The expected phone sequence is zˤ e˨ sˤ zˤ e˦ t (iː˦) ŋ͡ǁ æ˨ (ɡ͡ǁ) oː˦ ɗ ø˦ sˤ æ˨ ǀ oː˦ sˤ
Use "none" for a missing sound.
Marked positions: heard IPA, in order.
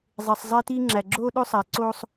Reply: iː˦, ɡ͡ǁ

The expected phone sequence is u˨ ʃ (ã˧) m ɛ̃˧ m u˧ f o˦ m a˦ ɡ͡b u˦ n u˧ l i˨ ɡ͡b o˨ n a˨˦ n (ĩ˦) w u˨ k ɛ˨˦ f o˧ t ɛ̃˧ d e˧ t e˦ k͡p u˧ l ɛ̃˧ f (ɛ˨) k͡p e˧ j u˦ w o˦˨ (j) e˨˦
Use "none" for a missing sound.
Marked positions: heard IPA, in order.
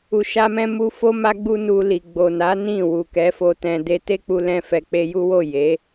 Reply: a˧, ĩ˦˨, ɛ˨, j

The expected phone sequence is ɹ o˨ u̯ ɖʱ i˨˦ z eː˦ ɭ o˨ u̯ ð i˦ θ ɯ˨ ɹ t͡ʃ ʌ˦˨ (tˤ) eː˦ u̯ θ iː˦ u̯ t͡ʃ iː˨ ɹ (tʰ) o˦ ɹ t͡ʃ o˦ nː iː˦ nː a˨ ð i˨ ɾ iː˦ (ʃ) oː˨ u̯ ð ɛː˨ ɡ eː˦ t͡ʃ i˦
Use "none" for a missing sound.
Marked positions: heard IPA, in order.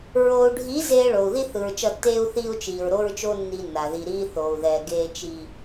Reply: tː, ɾ, θ

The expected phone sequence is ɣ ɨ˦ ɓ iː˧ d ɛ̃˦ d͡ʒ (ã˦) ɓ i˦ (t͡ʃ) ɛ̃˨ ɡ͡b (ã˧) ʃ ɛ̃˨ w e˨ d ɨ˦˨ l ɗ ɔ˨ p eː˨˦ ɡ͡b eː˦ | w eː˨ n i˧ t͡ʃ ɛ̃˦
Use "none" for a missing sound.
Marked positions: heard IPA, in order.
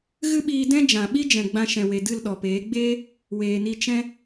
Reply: ã˨, d͡ʒ, ã˧

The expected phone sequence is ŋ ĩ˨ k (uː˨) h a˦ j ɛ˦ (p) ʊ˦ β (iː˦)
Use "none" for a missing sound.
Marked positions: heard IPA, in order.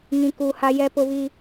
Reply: uː˨, p, iː˦

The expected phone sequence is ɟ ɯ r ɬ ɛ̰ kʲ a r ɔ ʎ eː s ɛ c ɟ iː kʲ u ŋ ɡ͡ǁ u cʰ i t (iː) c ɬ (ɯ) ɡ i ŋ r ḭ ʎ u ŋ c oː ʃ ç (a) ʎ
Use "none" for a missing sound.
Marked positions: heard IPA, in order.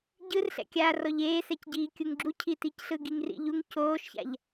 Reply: i, ɯ, a̰

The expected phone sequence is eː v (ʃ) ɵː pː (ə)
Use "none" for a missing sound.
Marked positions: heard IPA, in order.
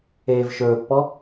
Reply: ʃ, ɔ

